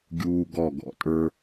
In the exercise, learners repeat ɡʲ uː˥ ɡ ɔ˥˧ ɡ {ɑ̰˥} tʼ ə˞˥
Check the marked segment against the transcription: incorrect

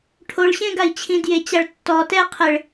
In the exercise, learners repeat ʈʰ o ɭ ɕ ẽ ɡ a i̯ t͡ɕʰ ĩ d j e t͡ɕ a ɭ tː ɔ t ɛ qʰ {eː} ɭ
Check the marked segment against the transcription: incorrect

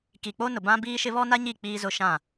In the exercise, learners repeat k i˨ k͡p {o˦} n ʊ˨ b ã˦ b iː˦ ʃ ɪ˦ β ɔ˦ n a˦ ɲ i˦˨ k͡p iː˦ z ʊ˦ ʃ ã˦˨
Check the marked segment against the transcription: correct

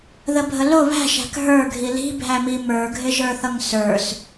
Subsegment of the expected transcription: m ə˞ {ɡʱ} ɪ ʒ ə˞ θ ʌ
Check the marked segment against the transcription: correct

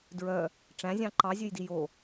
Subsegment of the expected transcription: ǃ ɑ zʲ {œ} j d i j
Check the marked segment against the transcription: incorrect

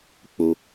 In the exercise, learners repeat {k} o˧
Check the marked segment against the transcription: incorrect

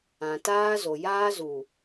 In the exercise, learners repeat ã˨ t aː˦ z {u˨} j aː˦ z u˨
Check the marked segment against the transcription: incorrect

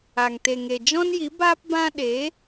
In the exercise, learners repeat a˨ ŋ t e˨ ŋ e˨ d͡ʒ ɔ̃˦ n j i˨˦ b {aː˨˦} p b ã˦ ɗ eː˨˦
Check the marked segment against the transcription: incorrect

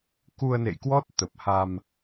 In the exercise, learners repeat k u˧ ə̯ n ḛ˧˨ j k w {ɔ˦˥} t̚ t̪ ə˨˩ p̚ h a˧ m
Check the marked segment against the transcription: correct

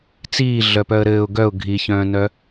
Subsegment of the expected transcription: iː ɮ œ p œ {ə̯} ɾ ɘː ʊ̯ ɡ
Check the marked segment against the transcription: correct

